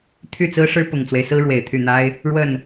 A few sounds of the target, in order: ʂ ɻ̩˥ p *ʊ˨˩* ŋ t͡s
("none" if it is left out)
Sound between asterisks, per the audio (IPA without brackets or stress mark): ʊ˨˩